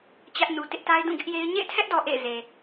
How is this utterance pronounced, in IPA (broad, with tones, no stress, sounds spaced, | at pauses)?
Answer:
t͡ɕ ä˦ ʔ n u˨ t ɪ˦ ʔ t a˦ ɪ̯ d ũ˦˨ ɡ ɪ˦ ʔ j e˦ ɪ̯ ɲ ḛ˦˨ ɪ̯ tʰ ɛ˦ ʔ d ɔ˨ ʔ ḛ˦˨ ɪ̯ z e˨